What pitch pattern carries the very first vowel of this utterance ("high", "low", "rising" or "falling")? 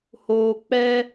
low